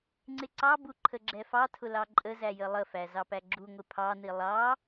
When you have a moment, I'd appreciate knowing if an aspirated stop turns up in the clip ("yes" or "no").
yes